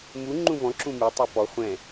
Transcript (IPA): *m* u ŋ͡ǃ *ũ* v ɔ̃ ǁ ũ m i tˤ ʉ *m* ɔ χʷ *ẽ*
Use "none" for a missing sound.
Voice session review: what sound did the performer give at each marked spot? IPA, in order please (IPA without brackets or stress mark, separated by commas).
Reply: m, ũ, p, ɛ̃